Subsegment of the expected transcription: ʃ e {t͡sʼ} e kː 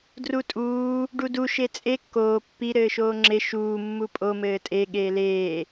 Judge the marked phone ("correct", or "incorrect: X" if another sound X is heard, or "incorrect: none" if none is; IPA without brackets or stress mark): correct